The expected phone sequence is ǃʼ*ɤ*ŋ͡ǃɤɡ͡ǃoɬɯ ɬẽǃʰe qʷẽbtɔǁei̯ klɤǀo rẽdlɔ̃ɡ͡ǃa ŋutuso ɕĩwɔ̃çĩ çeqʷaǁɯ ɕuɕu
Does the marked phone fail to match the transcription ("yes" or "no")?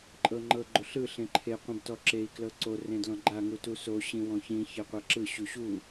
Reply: no